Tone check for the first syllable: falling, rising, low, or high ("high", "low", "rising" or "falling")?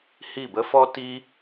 falling